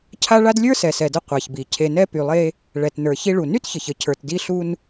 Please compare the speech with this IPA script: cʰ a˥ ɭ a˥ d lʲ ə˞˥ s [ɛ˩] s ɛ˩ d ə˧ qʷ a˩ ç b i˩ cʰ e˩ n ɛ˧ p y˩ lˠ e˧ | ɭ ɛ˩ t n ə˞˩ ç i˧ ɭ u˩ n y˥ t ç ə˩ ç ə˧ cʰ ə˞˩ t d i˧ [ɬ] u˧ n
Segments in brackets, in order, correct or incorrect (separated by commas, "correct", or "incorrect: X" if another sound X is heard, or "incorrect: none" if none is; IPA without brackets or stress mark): correct, correct